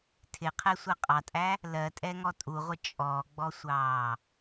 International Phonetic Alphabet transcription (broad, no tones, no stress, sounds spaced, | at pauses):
tʰ ɪ qʰ ɛ sʷ ɜ qʼ ɑ tʼ æ | l ɜ tʼ ɛ ŋ ɔ tʼ u ʁʷ ɪ t͡ʃʼ ɔ ɡ͡b ɔ sʷ ɑː